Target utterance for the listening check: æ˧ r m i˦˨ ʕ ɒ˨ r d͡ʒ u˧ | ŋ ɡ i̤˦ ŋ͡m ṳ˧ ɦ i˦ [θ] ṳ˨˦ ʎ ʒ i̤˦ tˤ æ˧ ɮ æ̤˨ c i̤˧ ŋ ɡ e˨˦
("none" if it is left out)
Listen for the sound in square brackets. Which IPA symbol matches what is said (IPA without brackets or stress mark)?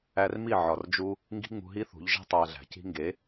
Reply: θ